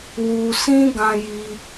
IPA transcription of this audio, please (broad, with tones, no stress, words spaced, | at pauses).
wu˧ sĩ˦ɡã˧ji˧